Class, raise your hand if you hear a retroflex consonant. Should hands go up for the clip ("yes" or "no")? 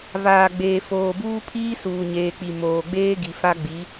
no